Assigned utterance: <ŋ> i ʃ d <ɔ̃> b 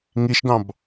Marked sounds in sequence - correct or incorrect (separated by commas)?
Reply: correct, incorrect